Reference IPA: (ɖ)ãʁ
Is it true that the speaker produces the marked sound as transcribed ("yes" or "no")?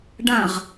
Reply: yes